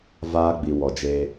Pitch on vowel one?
high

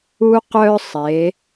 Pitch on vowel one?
high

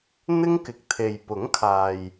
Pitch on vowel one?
high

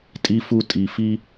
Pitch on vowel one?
high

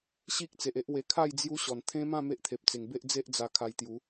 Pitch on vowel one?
high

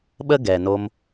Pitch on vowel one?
high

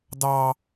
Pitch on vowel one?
high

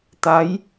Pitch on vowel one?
rising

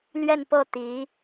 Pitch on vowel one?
falling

